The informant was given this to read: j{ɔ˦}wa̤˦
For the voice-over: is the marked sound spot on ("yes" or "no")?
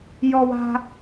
yes